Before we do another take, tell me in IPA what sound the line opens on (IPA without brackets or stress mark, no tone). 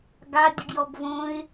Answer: ɡ